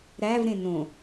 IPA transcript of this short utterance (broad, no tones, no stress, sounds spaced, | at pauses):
ɾ æ v ɾ ẽ n õ